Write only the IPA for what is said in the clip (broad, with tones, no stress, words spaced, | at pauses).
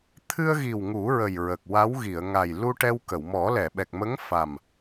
t̪ʰɨ˧ə̯ɣi˨˩w ŋu˨˩˦ɹə˨˩j ɹə˨˩k̚wa˧˥w ɣi˨˩˨ə̯ŋa˨˩j lu˧ ʈɛ˧wkə˨˩˨w mɔ˨˩˦lɛ˨˩˨ɓɛ˨˩k̚ mə˧˥ŋ fa˨˩m